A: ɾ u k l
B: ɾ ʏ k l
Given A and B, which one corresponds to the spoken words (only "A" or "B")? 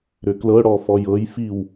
B